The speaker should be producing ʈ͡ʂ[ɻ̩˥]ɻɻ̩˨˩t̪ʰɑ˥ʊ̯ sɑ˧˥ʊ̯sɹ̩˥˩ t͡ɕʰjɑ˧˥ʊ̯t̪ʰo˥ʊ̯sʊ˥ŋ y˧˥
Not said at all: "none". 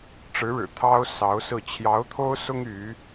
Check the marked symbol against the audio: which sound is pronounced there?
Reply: ɻ̩˧˥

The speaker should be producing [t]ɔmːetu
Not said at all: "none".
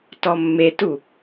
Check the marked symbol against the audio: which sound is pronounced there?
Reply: t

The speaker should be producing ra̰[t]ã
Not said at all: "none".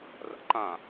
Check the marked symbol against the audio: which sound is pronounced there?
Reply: ǃ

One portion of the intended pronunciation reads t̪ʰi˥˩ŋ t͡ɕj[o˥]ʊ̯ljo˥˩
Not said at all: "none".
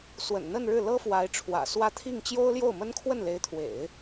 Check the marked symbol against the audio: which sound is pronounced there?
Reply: o˥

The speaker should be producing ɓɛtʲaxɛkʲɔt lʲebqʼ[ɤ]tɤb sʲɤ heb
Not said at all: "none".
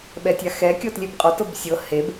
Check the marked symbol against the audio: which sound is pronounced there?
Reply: ɔ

